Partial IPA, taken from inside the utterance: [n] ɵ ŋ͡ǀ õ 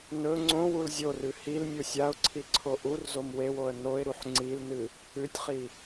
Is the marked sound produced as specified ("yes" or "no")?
yes